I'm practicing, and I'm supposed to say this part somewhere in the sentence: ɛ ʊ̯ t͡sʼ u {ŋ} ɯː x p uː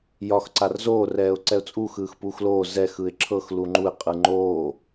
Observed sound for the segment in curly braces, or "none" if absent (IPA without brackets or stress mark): x